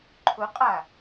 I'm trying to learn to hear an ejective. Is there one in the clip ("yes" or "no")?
yes